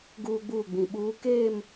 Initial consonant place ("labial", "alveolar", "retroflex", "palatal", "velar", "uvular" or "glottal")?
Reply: velar